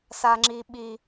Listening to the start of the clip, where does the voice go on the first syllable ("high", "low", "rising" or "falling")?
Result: high